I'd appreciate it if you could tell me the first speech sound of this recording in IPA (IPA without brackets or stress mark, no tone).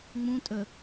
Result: ŋ͡m